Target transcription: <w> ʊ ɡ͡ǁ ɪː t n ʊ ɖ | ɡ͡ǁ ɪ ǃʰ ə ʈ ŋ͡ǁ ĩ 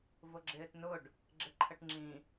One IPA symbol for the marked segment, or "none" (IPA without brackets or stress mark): v